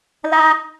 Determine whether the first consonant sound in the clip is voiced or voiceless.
voiced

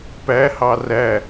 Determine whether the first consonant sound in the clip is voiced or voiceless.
voiceless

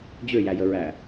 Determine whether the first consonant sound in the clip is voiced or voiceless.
voiced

